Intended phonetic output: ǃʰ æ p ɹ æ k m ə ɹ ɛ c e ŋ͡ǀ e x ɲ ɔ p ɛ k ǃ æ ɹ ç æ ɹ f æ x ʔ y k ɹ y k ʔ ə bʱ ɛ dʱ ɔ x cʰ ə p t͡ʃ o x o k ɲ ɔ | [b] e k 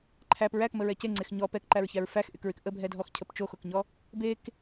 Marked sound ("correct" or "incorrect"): correct